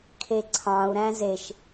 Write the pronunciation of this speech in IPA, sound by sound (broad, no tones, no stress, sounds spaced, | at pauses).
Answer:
kʰ e ǀʰ ɑ̃ u̯ ɾ æ̃ z e ʃ